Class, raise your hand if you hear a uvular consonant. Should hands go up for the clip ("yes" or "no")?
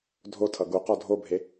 yes